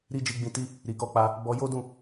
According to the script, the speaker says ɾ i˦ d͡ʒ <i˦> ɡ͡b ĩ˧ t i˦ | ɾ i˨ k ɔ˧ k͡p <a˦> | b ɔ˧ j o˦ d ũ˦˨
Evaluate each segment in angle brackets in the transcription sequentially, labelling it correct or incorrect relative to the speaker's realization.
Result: incorrect, incorrect

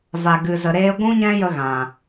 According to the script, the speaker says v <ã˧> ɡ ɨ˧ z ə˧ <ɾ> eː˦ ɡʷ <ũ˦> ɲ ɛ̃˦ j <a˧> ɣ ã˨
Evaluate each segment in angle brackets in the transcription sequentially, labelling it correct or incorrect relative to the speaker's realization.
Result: incorrect, correct, correct, incorrect

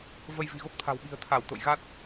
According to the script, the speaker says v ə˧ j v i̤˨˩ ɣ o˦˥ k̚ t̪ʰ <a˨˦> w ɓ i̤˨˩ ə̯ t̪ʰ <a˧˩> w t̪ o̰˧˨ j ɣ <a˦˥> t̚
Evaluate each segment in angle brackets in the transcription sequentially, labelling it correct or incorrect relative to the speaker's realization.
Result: incorrect, correct, correct

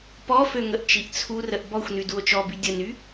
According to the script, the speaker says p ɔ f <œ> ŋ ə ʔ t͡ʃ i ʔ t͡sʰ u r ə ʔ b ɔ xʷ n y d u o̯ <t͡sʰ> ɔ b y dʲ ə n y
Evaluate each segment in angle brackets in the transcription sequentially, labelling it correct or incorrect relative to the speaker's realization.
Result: incorrect, incorrect

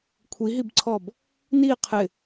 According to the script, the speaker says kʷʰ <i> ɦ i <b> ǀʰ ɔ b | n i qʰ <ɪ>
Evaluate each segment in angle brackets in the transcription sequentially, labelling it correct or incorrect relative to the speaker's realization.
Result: correct, correct, correct

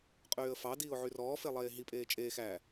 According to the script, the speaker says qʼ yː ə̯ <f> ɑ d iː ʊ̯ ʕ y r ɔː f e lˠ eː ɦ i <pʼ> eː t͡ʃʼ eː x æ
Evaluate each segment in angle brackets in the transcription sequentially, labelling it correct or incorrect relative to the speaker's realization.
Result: correct, correct

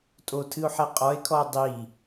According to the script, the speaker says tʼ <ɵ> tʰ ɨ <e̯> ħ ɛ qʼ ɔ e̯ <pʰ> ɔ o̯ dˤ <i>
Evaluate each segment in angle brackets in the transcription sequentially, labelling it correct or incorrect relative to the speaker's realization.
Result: incorrect, incorrect, incorrect, correct

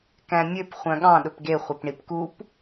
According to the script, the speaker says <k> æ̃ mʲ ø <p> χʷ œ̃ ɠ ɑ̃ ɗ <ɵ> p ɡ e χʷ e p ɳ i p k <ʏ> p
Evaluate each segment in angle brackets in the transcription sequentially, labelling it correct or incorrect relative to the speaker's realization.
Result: correct, correct, correct, incorrect

